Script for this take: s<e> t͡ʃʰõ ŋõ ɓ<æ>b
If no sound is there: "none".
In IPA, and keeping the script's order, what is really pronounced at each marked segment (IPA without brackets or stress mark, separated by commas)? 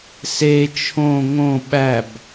e, æ